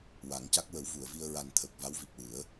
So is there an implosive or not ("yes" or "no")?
no